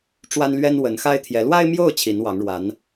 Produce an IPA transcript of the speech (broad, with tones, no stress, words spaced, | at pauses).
ʈ͡ʂwa˥nlɥɛ˥nwə˧˥n xa˥ɪ̯t̪ʰjɛ˧˥ lwa˥ɪ̯mjo˥˩ʊ̯ t͡ɕʰi˧˥nwɑ˧˥ŋɻwa˧˥n